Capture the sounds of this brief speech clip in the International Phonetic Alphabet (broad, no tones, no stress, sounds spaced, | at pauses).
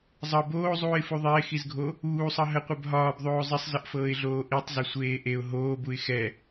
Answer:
zˤ ɤ b oː zˤ uː ɪ̯ f u ðˤ ɪː x i z ɡʱ o | uː sˤ ɤ ɦ ə qʷ ɛ b ɦ ɒː b ðˤ oː zˤ ɪ sˤ z ə ʔ f ɤː ɪ̯ ɮ oː ʔ i tˤ z ɪ sʷ eː ʔ e ʊ̯ ɦ oː b u ɪ̯ x ɛ